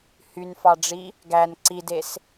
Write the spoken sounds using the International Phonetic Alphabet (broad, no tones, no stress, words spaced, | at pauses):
hynfɑɖ͡ʐi | ɡæn ǀides